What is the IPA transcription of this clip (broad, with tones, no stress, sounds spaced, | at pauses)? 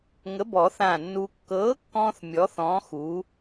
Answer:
ŋ ə˨˥ b ɔ˨˩˦ θ ãː˧˩ nː uː˧ kː ɤː˨˥ kː ɔ̃ː˧ θ mʲ ɔ˨˥ θ ɔ̃ː˨˥ x uː˨˥